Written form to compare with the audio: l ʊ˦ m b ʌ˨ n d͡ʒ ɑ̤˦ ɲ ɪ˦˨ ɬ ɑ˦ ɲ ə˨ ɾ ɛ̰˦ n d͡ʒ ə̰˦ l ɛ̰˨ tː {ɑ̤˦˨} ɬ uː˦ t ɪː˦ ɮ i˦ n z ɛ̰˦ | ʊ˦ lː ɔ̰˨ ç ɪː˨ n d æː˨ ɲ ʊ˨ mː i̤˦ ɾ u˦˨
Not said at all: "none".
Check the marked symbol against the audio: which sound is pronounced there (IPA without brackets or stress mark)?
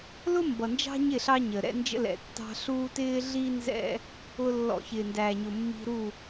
ɑ̤˦